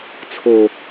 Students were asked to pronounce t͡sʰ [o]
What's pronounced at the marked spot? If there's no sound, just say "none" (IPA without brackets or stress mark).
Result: o